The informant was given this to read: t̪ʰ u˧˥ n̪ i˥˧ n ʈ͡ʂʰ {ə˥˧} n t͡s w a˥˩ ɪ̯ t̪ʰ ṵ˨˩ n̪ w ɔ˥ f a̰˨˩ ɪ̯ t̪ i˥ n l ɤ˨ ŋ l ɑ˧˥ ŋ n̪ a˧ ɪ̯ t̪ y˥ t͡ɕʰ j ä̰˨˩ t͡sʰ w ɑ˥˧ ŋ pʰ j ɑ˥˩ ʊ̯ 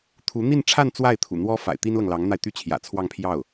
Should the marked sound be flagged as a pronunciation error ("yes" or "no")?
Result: yes